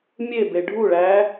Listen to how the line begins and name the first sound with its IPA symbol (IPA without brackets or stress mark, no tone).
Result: mʲ